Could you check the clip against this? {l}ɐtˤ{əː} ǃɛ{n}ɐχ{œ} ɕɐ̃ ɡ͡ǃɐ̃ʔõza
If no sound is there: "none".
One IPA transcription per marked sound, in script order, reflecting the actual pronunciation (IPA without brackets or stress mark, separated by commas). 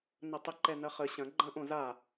n, ə, n, ə